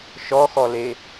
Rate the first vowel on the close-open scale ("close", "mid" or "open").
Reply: mid